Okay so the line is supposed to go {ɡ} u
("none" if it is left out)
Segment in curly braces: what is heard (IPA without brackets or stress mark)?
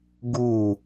ɡ